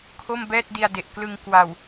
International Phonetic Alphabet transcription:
kʰ o˥˩ m b ɛː˥˩ t̚ d i˧ a̯ d e˨˩ ʔ k l ɯ˧ ŋ k w a˨˩ w

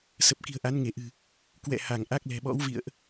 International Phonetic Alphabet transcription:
s ə˨˩ p̚ k i̤˨˩ ə̯ ʔ a˨˦ n ŋ e˧˩ ʔ ɨ̤˨˩ | k w ɛ̰˧˨ h a˧˩ ŋ ʔ a˦˥ k̚ l ɛ̤˨˩ ɓ ɔ̰˧˥ w v ḭ˧˨ ə̯ ʔ

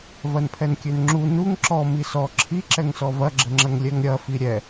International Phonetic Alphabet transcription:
v ɐ n pʰ ɛ n kʲ ø n ŋ͡ǁ u n u ŋ ǁ ɔ m i s ɔ ǁʰ i ǁ ɛ ŋ s ɔ v ɐ ɡ͡ǁ ə ŋ͡ǁ ɐ ŋ lʲ ɛ ŋ ɾʲ ɐ f i ɾʲ ɛ

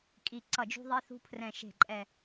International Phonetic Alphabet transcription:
kʼ i˨˩ ǀ ʌ˨˩ d͡ʒ ṳ˧ ðˤ i˧ θ ṳ˧ pʰ r ɛ̃˨˩ ʃ e̤˨˩ ǃʼ ɛ˨˩

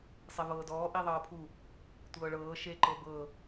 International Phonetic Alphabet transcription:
sˤ e v ɤː d ɔː ʔ i ðˤ ɤː pʰ u | tʷ ɤː ɭ ɤː ʃ e ǃ ɤ b ɤ

